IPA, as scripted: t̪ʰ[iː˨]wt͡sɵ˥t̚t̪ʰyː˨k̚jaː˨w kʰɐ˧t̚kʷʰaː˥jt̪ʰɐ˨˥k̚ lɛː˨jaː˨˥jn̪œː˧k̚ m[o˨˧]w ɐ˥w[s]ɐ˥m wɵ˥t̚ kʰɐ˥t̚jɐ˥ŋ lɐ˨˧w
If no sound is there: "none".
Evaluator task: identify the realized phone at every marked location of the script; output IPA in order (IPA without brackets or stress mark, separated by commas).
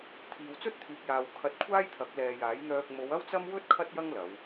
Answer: iː˨, o˨˧, t͡s